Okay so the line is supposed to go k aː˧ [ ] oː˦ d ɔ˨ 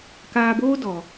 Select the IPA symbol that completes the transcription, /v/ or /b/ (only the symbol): b